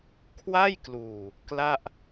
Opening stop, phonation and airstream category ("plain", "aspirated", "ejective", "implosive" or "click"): aspirated